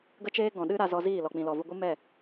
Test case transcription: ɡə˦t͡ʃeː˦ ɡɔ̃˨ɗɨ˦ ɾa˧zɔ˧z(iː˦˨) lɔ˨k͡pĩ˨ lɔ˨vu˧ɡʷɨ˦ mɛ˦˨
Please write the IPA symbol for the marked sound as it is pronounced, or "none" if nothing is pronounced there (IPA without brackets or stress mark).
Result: iː˦˨